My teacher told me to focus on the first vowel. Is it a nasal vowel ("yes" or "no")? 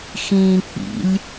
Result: yes